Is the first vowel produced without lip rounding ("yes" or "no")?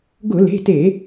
no